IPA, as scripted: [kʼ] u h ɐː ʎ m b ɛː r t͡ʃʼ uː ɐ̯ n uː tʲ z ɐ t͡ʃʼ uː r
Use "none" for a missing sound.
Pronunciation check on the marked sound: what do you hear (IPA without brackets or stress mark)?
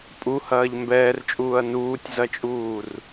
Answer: pʼ